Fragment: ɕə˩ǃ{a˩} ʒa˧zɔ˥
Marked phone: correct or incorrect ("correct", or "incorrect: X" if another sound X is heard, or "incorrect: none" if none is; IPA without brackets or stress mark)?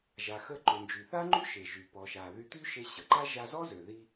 incorrect: a˥